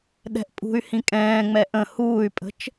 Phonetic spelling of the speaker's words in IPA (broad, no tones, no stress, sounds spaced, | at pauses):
ɗ ɛ̤ ʔ pʼ ṳ y̯ h ĩ kʼ ɛ̃ː ŋ͡m ɛ ʔ ə̃ h uː y̯ pʼ ə̤ t͡ʃ